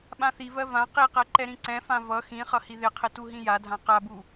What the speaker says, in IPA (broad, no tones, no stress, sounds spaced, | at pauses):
ɓ ã θ i v ɜ v ã q i q ɛ ǃ ɛ ɾ ĩ ǀ ɛ̃ f ã v ʌ x ĩ χ ʌ h i ð ɪ qʰ ɪ t u ɦ ĩ j a dʱ ã q a b u